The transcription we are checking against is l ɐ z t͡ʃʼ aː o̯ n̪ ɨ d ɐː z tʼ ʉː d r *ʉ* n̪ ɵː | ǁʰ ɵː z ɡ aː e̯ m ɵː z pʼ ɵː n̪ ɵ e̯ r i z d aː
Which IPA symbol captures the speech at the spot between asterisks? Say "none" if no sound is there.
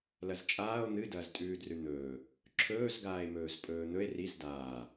ʉ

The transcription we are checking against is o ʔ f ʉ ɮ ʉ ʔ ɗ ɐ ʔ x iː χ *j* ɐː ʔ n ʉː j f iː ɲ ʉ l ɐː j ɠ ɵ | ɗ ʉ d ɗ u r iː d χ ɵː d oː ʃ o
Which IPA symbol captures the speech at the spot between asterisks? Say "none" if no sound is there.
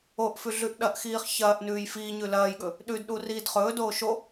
ç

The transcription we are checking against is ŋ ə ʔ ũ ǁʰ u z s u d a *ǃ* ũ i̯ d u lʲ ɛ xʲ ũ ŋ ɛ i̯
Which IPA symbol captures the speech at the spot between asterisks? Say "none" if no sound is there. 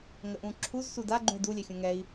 ɡ͡ǃ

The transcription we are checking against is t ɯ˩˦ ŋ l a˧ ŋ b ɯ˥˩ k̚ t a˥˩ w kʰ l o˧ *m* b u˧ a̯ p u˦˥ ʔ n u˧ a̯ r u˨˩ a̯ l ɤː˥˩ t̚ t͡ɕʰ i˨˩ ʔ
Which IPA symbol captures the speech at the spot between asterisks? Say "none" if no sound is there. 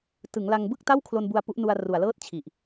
n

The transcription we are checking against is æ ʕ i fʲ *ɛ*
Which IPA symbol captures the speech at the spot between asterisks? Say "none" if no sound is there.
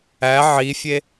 e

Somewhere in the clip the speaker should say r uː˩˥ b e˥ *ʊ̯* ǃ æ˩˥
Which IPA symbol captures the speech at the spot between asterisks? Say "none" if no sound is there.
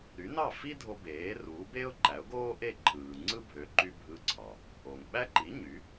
ʊ̯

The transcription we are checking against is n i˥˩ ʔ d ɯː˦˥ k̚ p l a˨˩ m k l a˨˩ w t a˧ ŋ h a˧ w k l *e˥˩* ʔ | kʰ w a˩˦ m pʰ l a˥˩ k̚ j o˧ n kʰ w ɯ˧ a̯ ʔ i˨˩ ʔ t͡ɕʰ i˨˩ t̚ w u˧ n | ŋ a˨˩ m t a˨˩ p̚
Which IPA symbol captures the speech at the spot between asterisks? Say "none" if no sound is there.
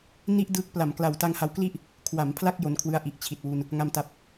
i˥˩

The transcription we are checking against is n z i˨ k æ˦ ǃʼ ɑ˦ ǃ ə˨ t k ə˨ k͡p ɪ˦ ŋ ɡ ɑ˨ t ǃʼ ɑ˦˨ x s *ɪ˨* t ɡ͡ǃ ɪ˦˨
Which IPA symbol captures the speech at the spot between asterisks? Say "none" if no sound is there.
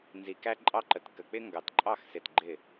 ɪ˨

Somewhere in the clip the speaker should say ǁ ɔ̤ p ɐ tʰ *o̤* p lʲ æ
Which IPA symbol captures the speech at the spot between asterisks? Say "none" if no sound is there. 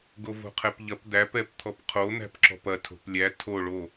o̤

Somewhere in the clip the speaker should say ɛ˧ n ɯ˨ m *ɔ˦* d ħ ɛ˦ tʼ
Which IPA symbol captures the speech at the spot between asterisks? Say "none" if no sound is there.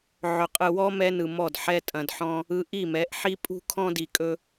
ɔ˦˨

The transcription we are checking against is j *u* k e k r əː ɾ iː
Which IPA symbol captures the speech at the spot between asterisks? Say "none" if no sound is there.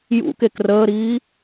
ṵ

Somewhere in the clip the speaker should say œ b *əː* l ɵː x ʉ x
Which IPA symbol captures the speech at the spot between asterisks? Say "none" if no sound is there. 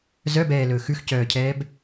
ɛː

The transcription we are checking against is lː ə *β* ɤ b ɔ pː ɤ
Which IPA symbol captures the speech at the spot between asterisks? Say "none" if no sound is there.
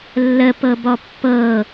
p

